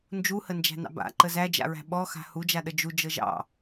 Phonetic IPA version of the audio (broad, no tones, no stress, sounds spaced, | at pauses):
n d͡ʒ u h ə n d͡ʒ æ̤ n ɑ̰ b a̰ ǃ ə z æ d͡ʒ a̰ ɹ æ̤ ɓ ɔ x a̤ h u d͡ʒ a ɗ ə d͡ʒ u d͡ʒ ɤ ʒ ɑ̰